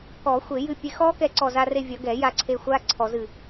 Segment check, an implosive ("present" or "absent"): absent